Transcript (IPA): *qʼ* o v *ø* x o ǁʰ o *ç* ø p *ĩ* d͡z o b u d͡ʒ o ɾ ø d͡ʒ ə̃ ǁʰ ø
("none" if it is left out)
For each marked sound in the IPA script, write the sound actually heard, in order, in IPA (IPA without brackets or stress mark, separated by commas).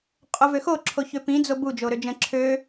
qʼ, ø, ç, ĩ